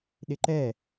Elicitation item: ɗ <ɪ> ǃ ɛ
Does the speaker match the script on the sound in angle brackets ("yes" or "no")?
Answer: yes